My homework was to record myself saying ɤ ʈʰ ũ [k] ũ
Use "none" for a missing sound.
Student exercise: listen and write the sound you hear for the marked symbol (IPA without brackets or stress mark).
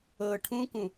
k